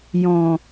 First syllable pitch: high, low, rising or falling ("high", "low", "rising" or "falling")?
low